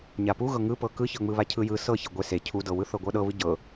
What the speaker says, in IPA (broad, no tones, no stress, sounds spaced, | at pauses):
ɲ a p u ɣ ɤ ŋ ɯ p ɤ k ɯ ç ɤ ŋ͡m ɯ β a cʰ ɯ j ɯ s ɤ ç e ɡʷ e s e cʰ u d ɤ w ɯ θ ɤ ɡʷ ɤ ɗ ɤ β ɯ ɟ ɤ